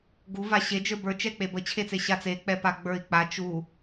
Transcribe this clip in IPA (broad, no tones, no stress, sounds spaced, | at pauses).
ɡ u v a ɕ e d͡ʒ ə˞ b ə˞ t͡ʃ ɛ k͡p e b ə t͡ɕʰ e t͡s e ɕ a t͡s e k͡p ɛ p a ɡ͡b ə˞ i̯ k͡p a t͡ʃ u